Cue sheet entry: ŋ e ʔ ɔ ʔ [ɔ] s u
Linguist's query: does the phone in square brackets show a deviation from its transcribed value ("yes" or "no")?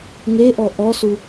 no